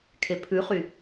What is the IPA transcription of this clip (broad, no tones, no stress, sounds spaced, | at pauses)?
kʰ e pʰ ʉ χ y